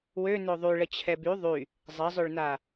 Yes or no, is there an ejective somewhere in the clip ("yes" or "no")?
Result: no